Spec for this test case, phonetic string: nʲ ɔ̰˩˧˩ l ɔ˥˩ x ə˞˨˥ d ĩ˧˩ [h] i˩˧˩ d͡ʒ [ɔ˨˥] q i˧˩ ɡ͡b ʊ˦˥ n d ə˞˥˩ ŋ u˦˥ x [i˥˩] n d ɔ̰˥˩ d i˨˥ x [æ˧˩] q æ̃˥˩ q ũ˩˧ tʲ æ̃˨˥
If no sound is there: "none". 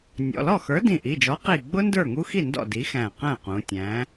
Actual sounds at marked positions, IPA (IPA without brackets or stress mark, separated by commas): ʔ, ɔ˨˥, i˥˩, æ̃˧˩